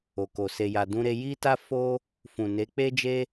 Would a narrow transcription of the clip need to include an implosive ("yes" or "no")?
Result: no